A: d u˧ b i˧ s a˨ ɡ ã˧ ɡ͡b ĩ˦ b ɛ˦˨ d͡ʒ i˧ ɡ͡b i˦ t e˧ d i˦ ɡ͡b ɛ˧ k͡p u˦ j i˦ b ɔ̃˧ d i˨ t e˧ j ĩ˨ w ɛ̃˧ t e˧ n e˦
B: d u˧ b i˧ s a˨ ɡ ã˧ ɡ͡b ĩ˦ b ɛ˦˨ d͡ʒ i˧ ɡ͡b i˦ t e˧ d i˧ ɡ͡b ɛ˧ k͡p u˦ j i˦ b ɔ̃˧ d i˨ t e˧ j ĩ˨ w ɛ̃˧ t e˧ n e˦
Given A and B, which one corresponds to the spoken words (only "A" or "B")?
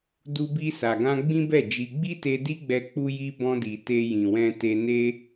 A